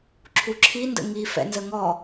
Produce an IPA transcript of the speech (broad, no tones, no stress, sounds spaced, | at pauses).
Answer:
ǁʰ u ǁʰ i n d ə̰ ŋ i f ɛ̰ n z ə ŋ ɔ